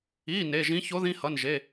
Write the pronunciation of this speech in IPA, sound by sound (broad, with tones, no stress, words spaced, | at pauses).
i˩˧˩ ne˩˧˩ʒĩ˧˥ ço˧˥ðĩ˧˥hʌ˩˧˩nʒe˩˧˩